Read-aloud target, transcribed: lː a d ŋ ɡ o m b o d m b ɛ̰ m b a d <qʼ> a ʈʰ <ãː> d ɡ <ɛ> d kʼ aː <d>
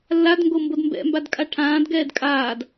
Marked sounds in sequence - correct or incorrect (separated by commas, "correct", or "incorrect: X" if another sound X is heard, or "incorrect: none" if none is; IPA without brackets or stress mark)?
incorrect: kʼ, correct, incorrect: ɛː, correct